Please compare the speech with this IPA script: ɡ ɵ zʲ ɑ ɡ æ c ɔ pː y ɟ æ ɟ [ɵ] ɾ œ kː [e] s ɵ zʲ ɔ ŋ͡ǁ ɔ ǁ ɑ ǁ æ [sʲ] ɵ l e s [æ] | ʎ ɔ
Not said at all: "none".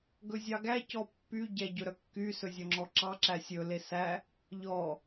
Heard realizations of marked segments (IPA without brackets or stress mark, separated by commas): ɵ, y, sʲ, æ